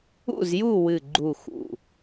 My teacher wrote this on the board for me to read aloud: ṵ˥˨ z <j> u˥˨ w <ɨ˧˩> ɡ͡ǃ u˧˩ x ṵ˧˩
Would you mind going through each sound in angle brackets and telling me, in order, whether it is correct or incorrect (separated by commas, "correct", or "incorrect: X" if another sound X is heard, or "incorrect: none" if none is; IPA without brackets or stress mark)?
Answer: correct, correct